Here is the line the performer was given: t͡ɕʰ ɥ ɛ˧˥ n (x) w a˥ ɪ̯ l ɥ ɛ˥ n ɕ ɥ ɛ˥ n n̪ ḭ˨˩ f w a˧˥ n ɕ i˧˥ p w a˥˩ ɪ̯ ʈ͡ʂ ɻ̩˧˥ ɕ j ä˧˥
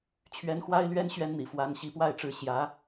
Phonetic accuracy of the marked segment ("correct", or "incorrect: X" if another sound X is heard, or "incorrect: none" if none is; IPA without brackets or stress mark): correct